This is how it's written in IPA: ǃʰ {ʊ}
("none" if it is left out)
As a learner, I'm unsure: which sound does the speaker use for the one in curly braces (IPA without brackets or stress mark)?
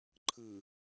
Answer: ɯ